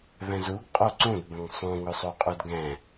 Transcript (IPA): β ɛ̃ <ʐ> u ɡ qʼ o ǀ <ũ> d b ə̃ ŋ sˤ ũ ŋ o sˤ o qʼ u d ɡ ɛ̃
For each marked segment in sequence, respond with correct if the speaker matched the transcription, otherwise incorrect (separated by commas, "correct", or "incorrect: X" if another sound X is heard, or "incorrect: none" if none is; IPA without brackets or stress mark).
incorrect: z, correct